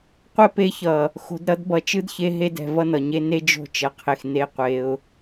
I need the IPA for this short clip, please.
qʷ ɛ˦ p e˧ ç ʌ˨ | x o̤˨ d ɾ ʌ˧ d b ʌ˨ t͡ʃ ɯ˦ d ç e˧ ɦ e˧ d ɛ̤˨ v ʌ˦ n ʌ˨ ɲ e˦ n e˦ d͡ʒ o̤˦˨ t͡ʃ ʌ˨ qʰ e˨ x n e˦ qʷ e˧ ʊ̯

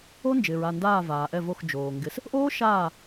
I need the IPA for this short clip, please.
o˦˥ n d͡ʒ ɪː˩ ɹ a˧˩ n d aː˧˩ v aː˩ ʔ ɛ˧˩ v o˧˩ x d͡ʒ oː˩ ŋ ɡ ɪ˩˧ s | ʔ oː˦˥ ʃ aː˧˩

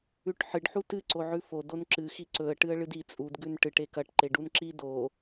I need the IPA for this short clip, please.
ʉ ʈ ħ ɨ ɖ ħ u t ɨ ǀ o ʕ ʉ f o d o n ǁ ɨ x i ǀ ɵ ə̯ ʈ ɨ ə̯ ɭ ɨ d i t͡sʼ u d ɡ ʉ n ʈ ɨ ʈ e k ɐ ʈ ǃ e ɖ u n ǁ i d o

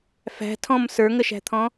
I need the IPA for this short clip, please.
f æ̤ tʰ ɔ̃ m s ə˞ ŋ ə ʃ æ̤ t̪ʰ ɔ̃

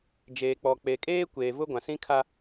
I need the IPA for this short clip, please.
d͡ʒ eː˨ k͡p ɔ˨ k͡p e˨ kʼ eː˦ kʷ eː˨ v ʊ˦ ɡʷ ã˨ s ĩ˦ kʰ a˦

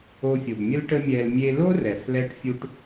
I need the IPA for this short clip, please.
o˧ fʲ o˩ b mʲ ə˥ l ʈ ə˥ mʲ ɛ˧ l mʲ e˧ l o˥ r ɛ˩ f l ɛ˥ ʈ fʲ u˥ ʈ

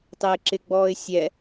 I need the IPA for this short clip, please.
tˤ ɪː ǁ ɪ ɡ͡b ɔː ɪ̯ sʲ ɛ

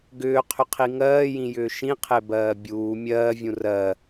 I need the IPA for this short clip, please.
ɡ ʏː qʰ ʏ qʰ i ŋ ɜː j ĩ j ʏː ʃ ĩ qʰ e b ɜː bʲ uː mʲ ɜː vʲ ũ r ɜ

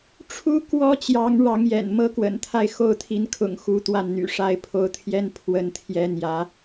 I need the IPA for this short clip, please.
ʈ͡ʂʰ u˥ k w ɔ˥ t͡ɕ j ɑ˧˥ ŋ ɻ ɑ˧˥ ŋ j ɛ̰˨˩ n m ɤ˥ k w ə̰˨˩ n t̪ʰ a˥˧ ɪ̯ x o˥˩ ʊ̯ t̪ʰ i˧˥ n kʰ ʊ̰˨˩ ŋ x u˧˥ t̪ w a˥˩ n n̪ y̰˨˩ ʂ a˥ ɪ̯ pʰ o˧˥ ʊ̯ t̪ʰ j ɛ˥ n pʰ w ə˥ n t̪ʰ j ɛ˥ n̪ j ä˧˥

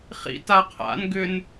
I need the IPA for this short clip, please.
χ ḭ t a qʰ a̰ n ɡ ʏ n

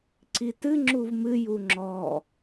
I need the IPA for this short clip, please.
ǀ i t ɨ ŋ͡ǁ u v m ɨ j u ŋ͡ǁ ɔ

